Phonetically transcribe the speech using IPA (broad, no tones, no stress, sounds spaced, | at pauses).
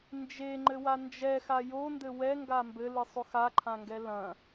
n d͡ʒ e ŋ͡ǃ ɘ w a n d͡ʒ ɛ x a j o n d ɘ w ɛ ŋ ɡ a m b ɘ l ɨ sˤ o x a ǃʰ ã ŋ ɡ ɛ l ɐ̃